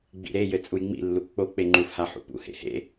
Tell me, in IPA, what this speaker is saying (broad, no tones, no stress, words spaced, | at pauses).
ɡ͡bḭɾejɘ t͡sʼujŋ͡mḭlːu k͡pok͡pe ŋ͡ǃufha ħṵpṵhḛ hḛ